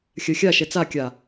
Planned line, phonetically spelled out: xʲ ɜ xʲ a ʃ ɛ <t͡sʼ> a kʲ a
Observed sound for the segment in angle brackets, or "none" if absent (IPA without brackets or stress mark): t͡s